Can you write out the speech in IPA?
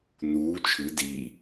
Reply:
n uː t͡ʃʰ ɨ d iː

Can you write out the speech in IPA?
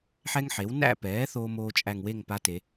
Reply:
ħ ɛ˥ ŋ ħ e˩˥ w n æ̰˥˧ p ɛː˩˥ θ oː˥ m oː˥ t͡ʃʼ æ˥˧ ŋ w e˥˧ ŋ p a˧˥ t e˩˧

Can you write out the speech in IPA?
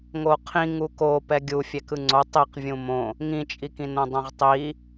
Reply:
ŋ o qʰ ĩ ŋ u k o p ɛ ɡʲ u fʲ ɛ k ɯ ŋ͡ǀ o tˤ i q vʲ ũ m õ | ŋ ĩ t͡ʃʼ i k ĩ n õ dˤ õ ʁ tˤ i

